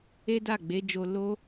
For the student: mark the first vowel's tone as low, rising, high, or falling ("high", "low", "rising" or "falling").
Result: high